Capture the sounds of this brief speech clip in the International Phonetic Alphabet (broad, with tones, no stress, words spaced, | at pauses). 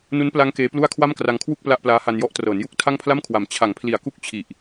nu˦˥npla˦˥ŋ keː˦˥plu˥˩a̯ kʰwa˥˩mkra˧ŋkʰwu˥˩k̚ pla˥˩ʔplaː˦˥ ha˧njɔ˦˥ʔtrɤː˩˦n ju˥˩k̚tʰa˥˩ŋpʰla˥˩mkʰwa˩˦m t͡ɕʰa˩˦ŋpʰli˩˦a̯ku˦˥k̚t͡ɕʰi˨˩ʔ